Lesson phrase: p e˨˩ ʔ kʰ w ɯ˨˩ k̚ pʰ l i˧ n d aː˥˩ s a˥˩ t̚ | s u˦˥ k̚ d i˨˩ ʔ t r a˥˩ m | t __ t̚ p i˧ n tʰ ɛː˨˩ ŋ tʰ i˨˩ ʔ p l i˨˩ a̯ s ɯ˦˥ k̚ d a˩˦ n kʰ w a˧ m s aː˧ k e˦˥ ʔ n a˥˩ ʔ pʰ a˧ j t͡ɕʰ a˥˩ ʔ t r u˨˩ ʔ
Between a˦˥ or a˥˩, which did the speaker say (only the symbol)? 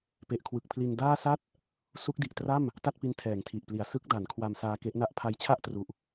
a˥˩